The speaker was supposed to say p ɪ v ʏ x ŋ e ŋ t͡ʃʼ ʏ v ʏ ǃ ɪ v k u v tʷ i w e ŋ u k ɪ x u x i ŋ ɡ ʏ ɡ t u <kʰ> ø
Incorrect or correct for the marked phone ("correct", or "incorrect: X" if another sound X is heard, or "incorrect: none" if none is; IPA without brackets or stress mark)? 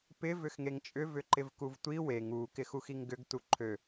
incorrect: ǃʰ